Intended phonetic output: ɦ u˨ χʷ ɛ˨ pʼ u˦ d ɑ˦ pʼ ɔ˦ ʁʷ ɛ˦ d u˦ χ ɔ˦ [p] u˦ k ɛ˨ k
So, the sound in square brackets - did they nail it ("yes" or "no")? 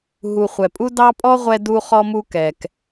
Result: no